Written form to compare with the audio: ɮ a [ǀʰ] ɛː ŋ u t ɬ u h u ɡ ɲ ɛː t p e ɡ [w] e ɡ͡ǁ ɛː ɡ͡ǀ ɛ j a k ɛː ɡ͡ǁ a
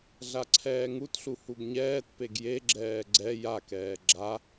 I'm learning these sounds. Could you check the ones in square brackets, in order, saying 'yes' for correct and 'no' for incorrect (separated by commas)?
yes, no